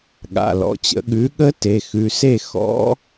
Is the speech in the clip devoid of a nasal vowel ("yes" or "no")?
yes